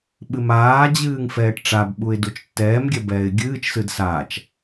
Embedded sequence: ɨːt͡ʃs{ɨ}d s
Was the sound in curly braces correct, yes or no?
yes